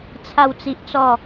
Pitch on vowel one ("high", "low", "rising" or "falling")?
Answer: falling